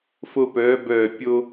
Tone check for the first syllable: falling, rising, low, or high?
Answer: high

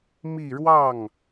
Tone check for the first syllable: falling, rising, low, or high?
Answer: falling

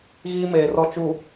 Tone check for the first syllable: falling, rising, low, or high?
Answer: high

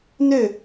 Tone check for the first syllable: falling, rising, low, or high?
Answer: falling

